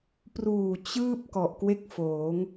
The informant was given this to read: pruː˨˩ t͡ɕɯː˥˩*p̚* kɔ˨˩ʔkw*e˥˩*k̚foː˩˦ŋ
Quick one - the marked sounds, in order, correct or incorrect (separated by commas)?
correct, correct